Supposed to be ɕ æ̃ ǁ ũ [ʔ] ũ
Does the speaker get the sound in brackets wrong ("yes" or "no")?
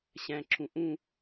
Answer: no